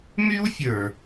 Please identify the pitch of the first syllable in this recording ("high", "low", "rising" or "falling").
high